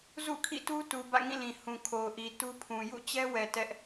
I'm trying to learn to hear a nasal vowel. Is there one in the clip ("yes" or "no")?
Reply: yes